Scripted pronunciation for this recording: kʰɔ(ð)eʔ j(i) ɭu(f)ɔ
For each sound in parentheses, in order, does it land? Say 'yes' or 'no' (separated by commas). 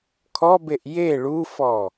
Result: no, no, yes